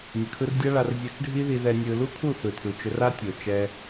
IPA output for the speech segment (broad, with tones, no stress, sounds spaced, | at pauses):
nʲ ə˨ kʰ ɯ˧ r dʲ a˦ ɭ a˧ r zʲ ɵ˧ t͡ʃ ɖʱ i˦ ð i˧ ð ɛ˧ nʲ ɯ˧ l u˦ kʰ u˦˨ θ ɯ˨ tʰ ɯ˨ t͡ʃ ɵ˧ r a˦ tʲ o˨ t͡ʃ ɛ˧